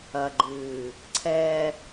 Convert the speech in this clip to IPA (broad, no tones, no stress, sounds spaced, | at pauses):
ɐ ɡ͡ǃ ɨː | ǀʰ ɛ